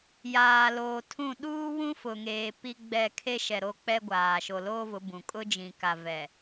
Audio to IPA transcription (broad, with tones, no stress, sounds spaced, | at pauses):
j aː˨ l oː˨ tʰ ũ˦˨ ɗ uː˦ w ũ˦ f ʊ˨ ŋ eː˨ p i˦ ɡ͡b ɛ˦˨ kʰ e˦ ʃ ɛ˨ ɾ o˦ k͡p ɛ˦ ɡʷ aː˨ ʃ o˨ l oː˦ v ʊ˨˦ b ũ˨ kʼ ʊ˦ d͡ʒ ĩ˨ k a˨ v ɛ˨